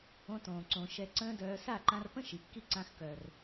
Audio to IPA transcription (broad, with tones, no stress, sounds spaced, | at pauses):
õ˧ t õː˨ ǀ õ˨ ʃ ɛ˧ ǀ ə̃ː˦ d œː˧ s a˦˨ ǃ ã˧ r p ə̃˦ ʃ i˨ kː i˦ ǀ ã˧ x k œ˨ r